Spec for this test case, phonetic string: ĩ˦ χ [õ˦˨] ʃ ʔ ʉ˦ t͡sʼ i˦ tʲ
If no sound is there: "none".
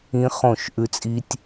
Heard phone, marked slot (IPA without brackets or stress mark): õ˦˨